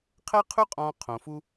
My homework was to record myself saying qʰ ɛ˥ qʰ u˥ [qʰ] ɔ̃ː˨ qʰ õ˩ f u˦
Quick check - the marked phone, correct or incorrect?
incorrect